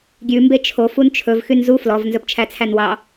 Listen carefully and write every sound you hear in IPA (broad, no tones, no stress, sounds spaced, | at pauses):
ɡʲ ʉ m b e t͡ʃʰ o f u n t͡ʃʰ ɵ v x y n z u f l ɔ v n z ɵ p t͡ʃʰ æ t͡sʰ æ n w ɑ